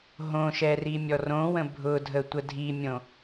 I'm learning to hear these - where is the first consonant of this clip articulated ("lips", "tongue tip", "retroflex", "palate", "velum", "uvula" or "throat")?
throat